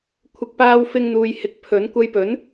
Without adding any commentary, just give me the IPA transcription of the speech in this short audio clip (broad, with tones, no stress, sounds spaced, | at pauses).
kʷʰ ɪ˨ k̚ p aː˧ w f ɪ˧ ŋ n̪ uː˨ j h ɪ˨˥ k̚ pʰ ɵ˨˥ n kʷ ɐ˧ j p ɵ˨˥ n